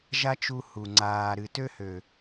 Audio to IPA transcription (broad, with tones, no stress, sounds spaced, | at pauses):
ʒ a˦ t͡ʃ u˧ h u˨ ŋ͡ǀ aː˨ ɾ ɨ˨ t ø˦ h ø˨